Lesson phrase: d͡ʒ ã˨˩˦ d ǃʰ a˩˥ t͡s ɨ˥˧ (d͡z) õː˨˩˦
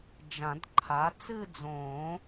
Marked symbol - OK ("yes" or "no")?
yes